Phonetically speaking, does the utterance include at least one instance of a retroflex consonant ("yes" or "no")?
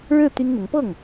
yes